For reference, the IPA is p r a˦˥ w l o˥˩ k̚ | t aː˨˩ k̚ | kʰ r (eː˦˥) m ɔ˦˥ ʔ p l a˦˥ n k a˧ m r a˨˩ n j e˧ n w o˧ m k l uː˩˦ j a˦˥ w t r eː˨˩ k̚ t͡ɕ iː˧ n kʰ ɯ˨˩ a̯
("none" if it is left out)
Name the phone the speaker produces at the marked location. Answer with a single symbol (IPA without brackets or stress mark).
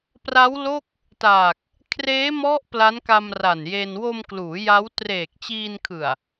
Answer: eː˦˥